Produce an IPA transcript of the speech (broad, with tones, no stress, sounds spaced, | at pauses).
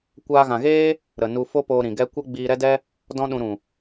kʷ aː˧ ɣ ã˨ ɣ eː˦ | ɾ ə˨ n u˧ f o˦ p oː˧ ɾ ĩ˨ ɡ ɛ˦ kʷ ɛ˦ ɡ͡b iː˧ ɾ ɛ˦ d ɛ˦ | d ɔ̃˦ ɗ ũ˧ ɾ ũ˨